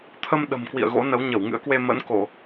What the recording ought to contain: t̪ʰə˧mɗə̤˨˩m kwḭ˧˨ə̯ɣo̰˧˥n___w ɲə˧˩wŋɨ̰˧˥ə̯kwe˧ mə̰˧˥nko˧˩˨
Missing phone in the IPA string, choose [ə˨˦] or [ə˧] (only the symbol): ə˨˦